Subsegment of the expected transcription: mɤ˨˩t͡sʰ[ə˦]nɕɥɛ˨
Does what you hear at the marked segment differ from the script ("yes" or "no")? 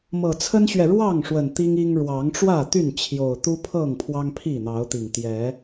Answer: no